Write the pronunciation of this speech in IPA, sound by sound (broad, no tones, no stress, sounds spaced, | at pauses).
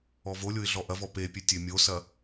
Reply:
ɔ v o lʲ o ɪ̯ ɮ ɔ ʔ ɐ v ɔ p e pʲ ø tʲ ø mʲ o s ɐ